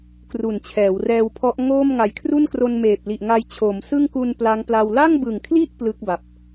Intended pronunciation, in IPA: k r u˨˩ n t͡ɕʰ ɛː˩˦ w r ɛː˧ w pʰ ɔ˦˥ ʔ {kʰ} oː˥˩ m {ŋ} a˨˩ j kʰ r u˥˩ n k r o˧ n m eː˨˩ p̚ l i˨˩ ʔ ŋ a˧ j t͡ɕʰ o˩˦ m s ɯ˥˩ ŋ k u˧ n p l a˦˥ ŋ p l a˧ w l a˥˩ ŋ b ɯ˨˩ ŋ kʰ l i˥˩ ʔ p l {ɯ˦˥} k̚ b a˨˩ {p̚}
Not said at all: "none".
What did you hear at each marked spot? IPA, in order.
ŋ, ŋ, ɯ˦˥, p̚

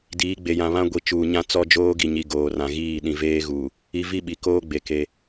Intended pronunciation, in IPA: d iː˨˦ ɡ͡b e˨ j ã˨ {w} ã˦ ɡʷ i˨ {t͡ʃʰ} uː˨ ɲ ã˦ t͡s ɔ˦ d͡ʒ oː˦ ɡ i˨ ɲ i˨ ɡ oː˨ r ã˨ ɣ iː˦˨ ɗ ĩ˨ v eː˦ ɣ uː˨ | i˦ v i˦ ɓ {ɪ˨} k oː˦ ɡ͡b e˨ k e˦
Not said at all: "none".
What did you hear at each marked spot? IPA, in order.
β, t͡ʃ, i˨

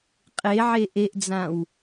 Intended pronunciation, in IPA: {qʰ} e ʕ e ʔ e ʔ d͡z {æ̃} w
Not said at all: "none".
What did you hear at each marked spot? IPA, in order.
qʼ, ã

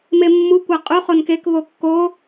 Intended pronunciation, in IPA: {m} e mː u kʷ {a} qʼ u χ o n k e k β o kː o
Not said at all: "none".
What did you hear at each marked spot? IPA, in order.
m, æ

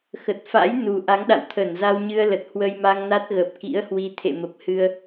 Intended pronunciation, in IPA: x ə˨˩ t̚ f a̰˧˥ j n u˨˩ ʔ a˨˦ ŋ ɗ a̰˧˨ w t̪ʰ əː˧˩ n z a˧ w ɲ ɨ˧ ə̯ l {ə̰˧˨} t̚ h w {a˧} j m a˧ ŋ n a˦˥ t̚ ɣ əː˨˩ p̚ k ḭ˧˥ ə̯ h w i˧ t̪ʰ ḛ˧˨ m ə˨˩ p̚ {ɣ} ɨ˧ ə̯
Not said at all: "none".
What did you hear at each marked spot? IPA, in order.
ə˨˩, ə˧, h

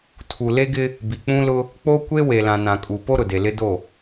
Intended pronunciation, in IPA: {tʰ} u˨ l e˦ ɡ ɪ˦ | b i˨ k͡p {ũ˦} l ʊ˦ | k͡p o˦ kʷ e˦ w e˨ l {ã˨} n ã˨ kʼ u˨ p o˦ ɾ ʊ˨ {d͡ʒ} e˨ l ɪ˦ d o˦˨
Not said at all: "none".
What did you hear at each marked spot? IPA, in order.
tʰ, ũ˦, ã˨, d

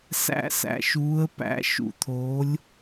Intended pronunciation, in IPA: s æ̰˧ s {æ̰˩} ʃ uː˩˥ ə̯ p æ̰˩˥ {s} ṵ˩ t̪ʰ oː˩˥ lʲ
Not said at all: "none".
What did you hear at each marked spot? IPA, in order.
æ̰˩, ʃ

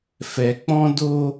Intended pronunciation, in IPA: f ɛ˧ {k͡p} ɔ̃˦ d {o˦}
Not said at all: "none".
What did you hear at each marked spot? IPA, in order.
k͡p, o˦

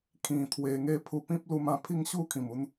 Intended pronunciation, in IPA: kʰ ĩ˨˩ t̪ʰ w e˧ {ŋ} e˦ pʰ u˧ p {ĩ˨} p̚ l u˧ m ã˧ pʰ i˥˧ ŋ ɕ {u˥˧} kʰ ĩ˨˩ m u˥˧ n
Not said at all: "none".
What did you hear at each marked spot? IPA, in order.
ŋ, ĩ˦, u˥˧

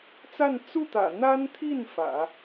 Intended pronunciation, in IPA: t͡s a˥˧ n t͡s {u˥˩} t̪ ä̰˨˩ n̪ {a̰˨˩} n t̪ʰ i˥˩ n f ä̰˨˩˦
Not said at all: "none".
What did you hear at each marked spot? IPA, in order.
u˥˩, a˥

